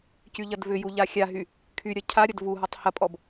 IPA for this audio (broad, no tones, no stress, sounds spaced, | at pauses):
c y ʎ ɐ d v ʏ j u ʎ a xʲ a ɦ y | kʰ y ɾʲ ɐ cʰ a ɾʲ ɐ d v u ɦ ɔ tˤ h ɐ pʼ ɔ b